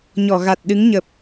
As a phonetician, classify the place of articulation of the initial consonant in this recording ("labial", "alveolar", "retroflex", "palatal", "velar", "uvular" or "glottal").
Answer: palatal